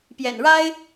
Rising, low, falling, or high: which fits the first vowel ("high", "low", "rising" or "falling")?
low